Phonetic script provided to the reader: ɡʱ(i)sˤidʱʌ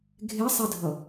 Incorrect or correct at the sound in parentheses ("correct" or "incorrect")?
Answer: incorrect